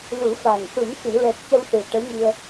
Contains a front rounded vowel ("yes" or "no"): no